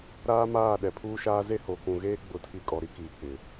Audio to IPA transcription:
ɾaː˦maː˦˨ ɗɛ˨pʰuː˦ʃaː˦ ze˦ho˨kũ˨ɣeː˦ ɡ͡bʊ˨˦tʰi˨ kʼɔ˨ɾi˦kiː˨ k͡pɪ˨

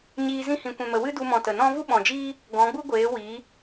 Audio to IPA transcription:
ɲiː˧ zĩ˧hĩ˨kʷɛ̃˨mə˨ wɨ˦du˧ mɔ̃˨ tə˨nɔ̃˦ vu˦ɓɔ̃˨d͡ʒiː˦ | ɡɔ̃˨˦ɡ͡bu˦ɡʷeː˨˦ wiː˨˦

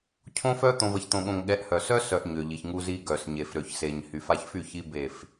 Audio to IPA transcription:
cʰõ˦fœ˦ t̪õ˨və˨çt̪õ˨ɠõ˨ŋ ɠɛ˨˦ʔhœ˨ sœ˦sœ˨ʔ ɲø˨ʎi˨çŋu˦zi˦ ɡœ˨sɲe˨fɾø˨çse˨ɲ hy˨fa˦ç fy˦˨çi˦ be˦˨f

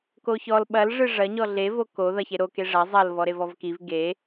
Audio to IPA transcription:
koçɔl ɓɐlʐɨ ʐɐɲɔ ɮevo ko ðɐçe ɾoke ʐɐ zˤɐl vɔɾevɔvkiv ɡe

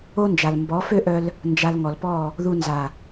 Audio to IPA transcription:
o˦nd͡ʒa˨l mbɔ˨˦fø˦ʔœ˧l | nd͡ʒa˧lŋɔ˨lpɔ˦˨ | ðu˧ nza˨

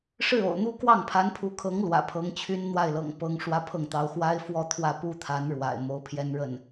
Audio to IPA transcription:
ʂɻ̩˥˩ o̰˨˩ʊ̯n̪u˥ kwɑ˥˩ŋpʰa˧˥npʰu˧˥kʰɤ˧˥ŋ lwä̰˨˩pʰɤ˧˥ŋt͡ɕʰy˥n n̪wa˥˩ɪ̯lɤ̰˨˩ŋpɤ˧˥ŋ ʂwä˥pʰɤ˥˩ŋt̪ɑ˧˥ʊ̯ xwa˥ɪ̯ fwɔ˥˧t̪ʰwä˥˩pu˥t̪ʰa˧˥n ɻwa̰˨˩ɪ̯ mo˧˥ʊ̯pʰjɛ˥n ɻə˥˩n

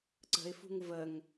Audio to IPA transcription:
ǀə̤ɪ̯fṳŋ vəŋ

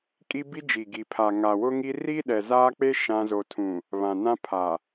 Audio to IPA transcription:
kʼi˦bi˦d͡ʒi˨ ɡi˨pʰa˨ ŋa˨wʊ˦ŋi˦ ri˦ ɗɛ˨zaː˦k͡pe˦ ʃã˦ zo˨tʰũ˨ | βã˨nã˦ pʰa˨

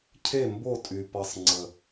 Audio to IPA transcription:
cʰe˥˨mbo˥˨ tʼy˧pʌ˦˥sˤŋ͡ǀə˧˩

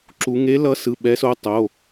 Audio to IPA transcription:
ǁu˧˥ ŋe˧˥lʌ˧˥sɯ˩˧˩ ɓɛ˧˥so˧˥ tˤo˩˧˩

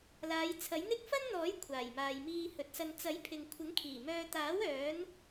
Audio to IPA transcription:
laː˨˧jt͡sʰɐ˨˥jn̪ɪ˥k̚ fɐ˥nn̪ɔː˨˥j kʷʰaː˨˩jmaː˨jmiː˧hɵ˨t̚ sɐ˨nt͡sɐ˨˥j pʰɪ˨ŋkʷʰɪ˨˥ŋkʰiː˨˩mœː˧ t̪aː˨˥w œː˨˥n

